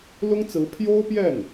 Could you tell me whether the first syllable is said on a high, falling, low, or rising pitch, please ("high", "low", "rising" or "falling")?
high